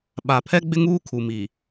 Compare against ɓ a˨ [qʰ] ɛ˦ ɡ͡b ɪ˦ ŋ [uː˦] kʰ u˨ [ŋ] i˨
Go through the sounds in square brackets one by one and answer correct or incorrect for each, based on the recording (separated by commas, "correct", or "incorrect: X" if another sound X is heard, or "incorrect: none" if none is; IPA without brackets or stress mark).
incorrect: pʰ, correct, incorrect: m